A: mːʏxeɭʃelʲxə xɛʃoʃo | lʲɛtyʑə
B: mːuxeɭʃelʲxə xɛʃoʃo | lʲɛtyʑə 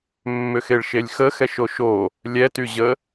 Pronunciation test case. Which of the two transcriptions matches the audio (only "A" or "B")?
A